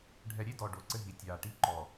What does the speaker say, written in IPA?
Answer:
ɖʱ ɛ˨ ɾʲ e˦ d ɔ˨ ɖ o˨ ǀ ɘ˦ ɦ i˨ tʲ aː˨ ʈ i˦ ǃ ɔ˨

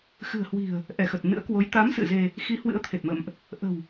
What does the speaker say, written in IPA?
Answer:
x ɨ̤˨˩ ə̯ h w i̤˨˩ ə̯ | ʔ ɛ˧˩ x ə˨˩ t̚ n ɨ̰˧˥ ə̯ k w o˨˦ j t̪ a˨˦ m s ɨ̰˧˨ z e˧ | x i˨˦ h w ɨ̰˧˥ ə̯ t̪ʰ e˨˩ t̚ m ə̰˧˨ m ʔ | ʔ ə̤˨˩ w

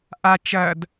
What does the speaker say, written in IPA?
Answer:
ʔ a t͡ʃ ɐ d

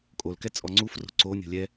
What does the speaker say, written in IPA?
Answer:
kʼ o l k ɛ t͡sʼ ɔ ŋ͡ǀ u f r o̤ ǀ o nʲ o̤ lʲ ɛ

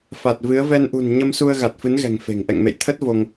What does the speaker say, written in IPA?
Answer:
f a˨˩ t̚ v ɨ˨˦ ə̯ v ɛ˧ n ʔ ṳ˨˩ n ɲ ə˧ m s u˧ ə̯ ɣ a˨˩ t̚ f ɨ˨˦ n ɣ ɛ̤˨˩ ŋ f e̤˨˩ ŋ ʔ ɛ̰˧˨ ŋ m ḛ˧˨ j t̪ʰ ə˦˥ t̚ v o˧ ŋ

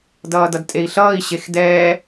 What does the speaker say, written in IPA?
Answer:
d ʌː d ʌ d tʼ e i̯ ɬ ʌː i̯ ɕ e x d ɛː

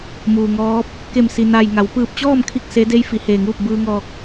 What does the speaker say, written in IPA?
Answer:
m uː˩ ŋ ɔː˧˥ p̚ | k e˧˩ m s i˩ n a˧˩ j ŋ a˩˧ w p ɯː˧˩ p̚ t͡ɕ ɔː˥˨ m kʰ i˥˨ k̚ s e˧˥ d e˧˥ j f i˩˧ h eː˧˩ ŋ uː˥˨ p̚ b ɯː˧ ŋ ɔː˧ k̚

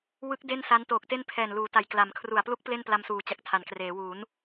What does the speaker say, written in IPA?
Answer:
w ɯ˦˥ k̚ d e˥˩ n s a˦˥ n t oː˨˩ k̚ t e˥˩ n pʰ ɛː˨˩ n l uː˩˦ t a˨˩ j k l a˩˦ m kʰ r u˨˩ a̯ p l u˦˥ k̚ p l e˥˩ n p l a˧ m s uː˩˦ t͡ɕ a˨˩ k̚ tʰ a˩˦ n k r eː˩˦ w uː˩˦ n

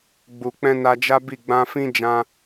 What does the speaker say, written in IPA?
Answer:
ɡ͡b u˨ k͡p ɛ̃˧ n a˧ d͡ʒ a˦ b i˦˨ ɡ͡b ã˧ f ĩ˦ d͡ʒ ã˧

